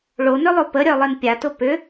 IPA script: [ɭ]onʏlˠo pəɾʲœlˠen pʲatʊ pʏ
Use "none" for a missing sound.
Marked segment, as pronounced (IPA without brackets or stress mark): ɭ